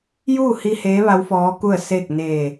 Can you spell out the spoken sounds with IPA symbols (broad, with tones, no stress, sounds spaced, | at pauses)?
j uː˥˨ h i˧ h eː˧˥ ʋ a˧˥ w f ɔː˧˥ k u˥˨ ə̯ s eː˥˨ k̚ n eː˧˩